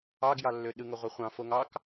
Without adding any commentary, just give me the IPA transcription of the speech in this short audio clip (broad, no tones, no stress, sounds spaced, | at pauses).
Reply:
ɑ ɡ j ɑ lː ø ɗ ɯ ŋ o ʁʷ æ χʷ ɑ̃ f o ŋ ɑ k